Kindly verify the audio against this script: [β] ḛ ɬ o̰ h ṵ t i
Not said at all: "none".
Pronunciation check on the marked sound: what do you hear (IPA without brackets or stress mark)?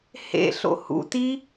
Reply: h